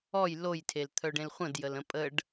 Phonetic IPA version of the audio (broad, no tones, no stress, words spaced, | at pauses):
ɔj lojtʰelt̪ʰœɖẽl χʷə̃djələ̃ pʼəɖ